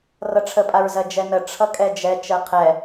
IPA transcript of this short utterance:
rʌʈ͡ʂʰəpʼaɹzɜ d͡ʒɛnə ʈ͡ʂʰʌkʼɛd͡ʒɛ t͡ʃɜqʰɛ

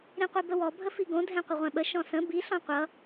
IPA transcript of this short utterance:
ɾĩqʷibəwɔ bʱəfiɡõ dʱɛ̃qʷəʁʷɛ̃ɓə ʃɔ̃sə̃ bi ɬɔ̃qʷʌ

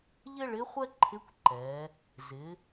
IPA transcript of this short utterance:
ʎɪ˥ɭɪ˧˥χʷɛ˥ ǃʰɪ˧˥kʷǃɛ˩˧ | zɪ˩˧

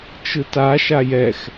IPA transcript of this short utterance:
t͡ʃɯta ʃajɛx

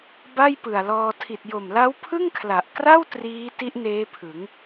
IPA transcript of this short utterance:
ba˥˩jpɯ˨˩a̯lɔː˧ tʰi˨˩t̚jo˨˩mla˦˥w pʰɯ˥˩ŋkʰla˨˩ʔkra˥˩w triː˦˥ti˦˥ʔ neː˦˥pʰɯ˩˦ŋ

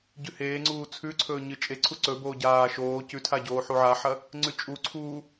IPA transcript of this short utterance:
ɟʉheːŋ͡ǀuː t͡sʰʉǀʰɵː ɲɨt͡ʃʼe ǀʰuǀɵ boːɟaː ʃoː cʉtʰaɟoː ħuʕaħɐ | ŋ͡ǀʉt͡ʃʼu ǀʰuː

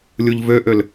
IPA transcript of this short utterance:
lʲuʎvøʔøl

